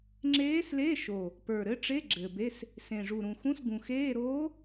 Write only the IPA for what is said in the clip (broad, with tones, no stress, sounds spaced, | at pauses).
ŋ͡ǁ eː˧˥ s l e˧˥˧ ʃ o˨˩ | p ə˞˨˩ ɾ ɘ˧˥ ʈ͡ʂ e˧˥˧ ɡ͡ǁ ɘ˨˩ b e˧˥˧ s | s ẽ˨˩ ʐ u˨˩ ɾ ũ˨˩ x ũ˧˥˧ s ɡ ũ˨˩ x eː˧˥˧ ɾ oː˧˥